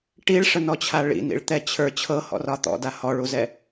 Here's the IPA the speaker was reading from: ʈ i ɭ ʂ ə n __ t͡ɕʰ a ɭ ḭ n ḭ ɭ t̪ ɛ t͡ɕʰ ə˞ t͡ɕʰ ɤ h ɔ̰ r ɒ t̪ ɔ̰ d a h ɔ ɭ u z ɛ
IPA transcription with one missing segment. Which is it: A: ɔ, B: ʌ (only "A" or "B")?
A